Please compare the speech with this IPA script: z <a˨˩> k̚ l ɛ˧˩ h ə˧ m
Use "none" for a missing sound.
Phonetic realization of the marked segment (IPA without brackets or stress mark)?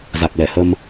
a˨˩